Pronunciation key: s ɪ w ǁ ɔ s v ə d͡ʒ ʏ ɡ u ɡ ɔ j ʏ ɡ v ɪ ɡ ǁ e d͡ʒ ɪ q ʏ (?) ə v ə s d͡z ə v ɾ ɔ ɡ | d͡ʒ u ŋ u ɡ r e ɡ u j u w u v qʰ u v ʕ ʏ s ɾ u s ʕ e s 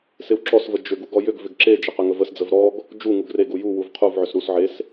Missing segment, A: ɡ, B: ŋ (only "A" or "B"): B